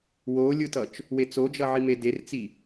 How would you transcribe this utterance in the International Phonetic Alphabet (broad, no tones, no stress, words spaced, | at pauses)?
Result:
wolʲɯtʌt͡ʃ | wet͡sod͡ʒʌʕi medert͡si